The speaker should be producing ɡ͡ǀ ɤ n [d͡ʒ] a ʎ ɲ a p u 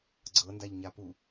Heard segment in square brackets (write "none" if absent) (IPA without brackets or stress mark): d